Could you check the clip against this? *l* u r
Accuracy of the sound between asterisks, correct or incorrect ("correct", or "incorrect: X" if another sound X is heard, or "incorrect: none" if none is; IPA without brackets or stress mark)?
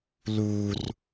correct